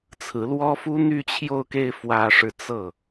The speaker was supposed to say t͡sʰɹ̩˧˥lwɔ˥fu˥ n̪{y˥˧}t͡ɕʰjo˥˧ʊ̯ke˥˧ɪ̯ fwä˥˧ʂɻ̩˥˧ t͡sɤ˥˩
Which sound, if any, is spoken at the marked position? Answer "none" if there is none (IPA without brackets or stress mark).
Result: y˥˧